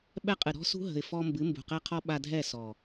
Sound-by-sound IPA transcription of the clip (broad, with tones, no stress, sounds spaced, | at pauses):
ɓ ɛ˦ qʼ ɨ˨ ɾ ɔ̤˦ s ṳ˦ ɦ ə̤˨ ɪ̯ f ɔ˧ m b ɨ˨˦ m b ṳ˨ q ɛ˦ qʰ ɔ˦ ɓ a˧ dʱ ɛ˦˨ s ɔ˨